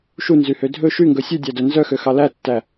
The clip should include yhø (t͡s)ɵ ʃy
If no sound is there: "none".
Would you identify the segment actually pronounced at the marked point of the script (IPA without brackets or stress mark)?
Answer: dʱ